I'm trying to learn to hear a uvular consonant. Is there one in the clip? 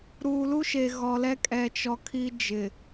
no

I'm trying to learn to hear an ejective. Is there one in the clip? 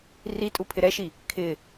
yes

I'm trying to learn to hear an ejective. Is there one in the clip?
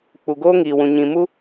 no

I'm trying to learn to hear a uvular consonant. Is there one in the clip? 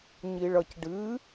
no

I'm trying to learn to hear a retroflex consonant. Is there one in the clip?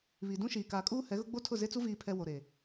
no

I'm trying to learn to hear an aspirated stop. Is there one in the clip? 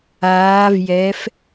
no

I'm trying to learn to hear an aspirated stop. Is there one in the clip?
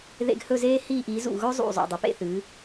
no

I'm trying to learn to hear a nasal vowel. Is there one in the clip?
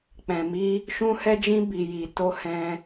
yes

